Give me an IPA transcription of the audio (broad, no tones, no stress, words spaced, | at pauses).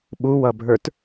ɓuwʌbʱə˞t